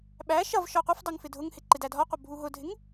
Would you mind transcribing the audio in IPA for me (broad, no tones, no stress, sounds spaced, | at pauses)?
ɓ æ ʃ ʌ v ʃ ɒ qʷ ɜ f dˤ ɜ ŋ f ɪ dʱ ʊ ŋ h ɪ ǃ ɪ d æ dʱ ɒ qʷ ʌ bʱ u ɦ ʊ dʱ ɪ ŋ